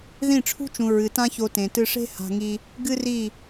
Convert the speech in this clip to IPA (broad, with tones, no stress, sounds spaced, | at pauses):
ð ĩ˦˨ ʈ͡ʂʰ ṳ˦ t͡ʃ ũ˨ ɹ ɨ˨ t ã˦ ç o˧ t ẽ˨ t ɨ˧ ʂ e̤˦ h a̤˧ ŋ i˧ | ɡ ɨ˦ r i˦˨